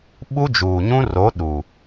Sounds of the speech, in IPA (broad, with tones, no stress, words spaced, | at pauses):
ɓu˦d͡ʒuː˨ɲũ˦ro˨˦ ɗu˨